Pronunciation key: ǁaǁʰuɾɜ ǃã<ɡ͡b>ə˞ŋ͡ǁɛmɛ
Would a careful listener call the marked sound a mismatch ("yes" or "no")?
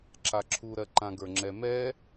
yes